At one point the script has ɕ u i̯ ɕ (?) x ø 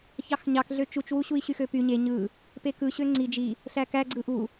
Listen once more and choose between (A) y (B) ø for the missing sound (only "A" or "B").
A